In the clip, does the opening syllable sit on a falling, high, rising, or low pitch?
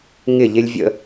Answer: falling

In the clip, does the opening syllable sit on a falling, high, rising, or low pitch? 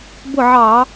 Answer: falling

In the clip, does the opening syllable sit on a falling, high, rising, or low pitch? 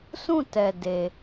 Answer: falling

